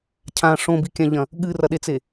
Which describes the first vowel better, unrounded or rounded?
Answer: unrounded